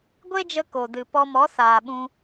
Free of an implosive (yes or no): no